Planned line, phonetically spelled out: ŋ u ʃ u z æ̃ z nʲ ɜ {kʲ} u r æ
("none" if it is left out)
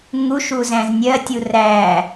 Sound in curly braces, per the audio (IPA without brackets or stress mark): tʲ